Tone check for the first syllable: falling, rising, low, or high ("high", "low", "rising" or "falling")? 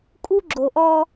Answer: high